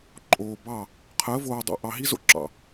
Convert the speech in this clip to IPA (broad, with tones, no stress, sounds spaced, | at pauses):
ǃʼ oː˨ b ɑ˦˨ | qʰ əː˨˦ v oː˨ dˤ o̰˨ ʔ ɑ˨ ɦ i˦ z o̰˦ ǁ ɑ̰˨